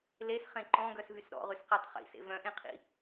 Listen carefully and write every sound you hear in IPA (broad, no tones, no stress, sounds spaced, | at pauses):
l e s χ ẽ ǃ ɔ̃ ɡ œ s v y s ɾ ɔ̰ ʁ y s q i tˤ χ ḭ s ḛ v œ̃ ʔ ẽ qʰ ḭ